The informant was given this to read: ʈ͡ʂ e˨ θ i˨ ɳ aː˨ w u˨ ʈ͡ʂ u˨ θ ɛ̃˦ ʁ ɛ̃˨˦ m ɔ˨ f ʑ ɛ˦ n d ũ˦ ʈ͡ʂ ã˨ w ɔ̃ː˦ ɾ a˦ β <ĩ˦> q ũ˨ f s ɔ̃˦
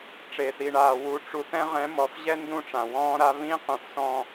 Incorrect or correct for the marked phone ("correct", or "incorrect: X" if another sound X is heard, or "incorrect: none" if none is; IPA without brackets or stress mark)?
correct